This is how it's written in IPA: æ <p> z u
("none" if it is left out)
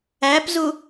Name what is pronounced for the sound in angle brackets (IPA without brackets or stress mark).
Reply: p